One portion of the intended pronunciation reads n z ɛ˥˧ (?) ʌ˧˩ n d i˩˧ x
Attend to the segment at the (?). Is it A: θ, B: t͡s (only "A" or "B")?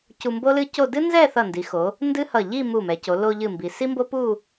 A